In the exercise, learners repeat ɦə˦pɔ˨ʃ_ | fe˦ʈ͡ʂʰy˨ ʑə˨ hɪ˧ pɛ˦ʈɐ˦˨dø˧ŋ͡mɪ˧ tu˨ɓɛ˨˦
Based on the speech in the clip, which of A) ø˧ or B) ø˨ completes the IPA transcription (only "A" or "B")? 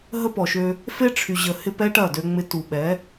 A